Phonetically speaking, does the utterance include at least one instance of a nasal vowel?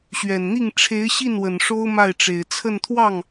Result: no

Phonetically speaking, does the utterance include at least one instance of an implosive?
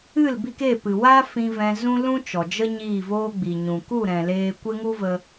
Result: no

